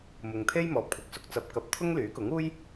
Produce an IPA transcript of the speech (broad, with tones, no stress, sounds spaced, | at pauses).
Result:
m ʊ˨ ŋ t̪ʰ e˥ j m ɔː˨ p̚ kʷʰ ɐ˨˥ k̚ s ʊ˧ k̚ t͡s ɐ˧ p̚ k ɐ˧ p̚ t̪ʰ ʊ˥ ŋ l yː˨˥ k ʊ˨˥ ŋ uː˥ j